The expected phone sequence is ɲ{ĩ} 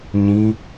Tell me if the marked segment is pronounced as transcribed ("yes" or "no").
yes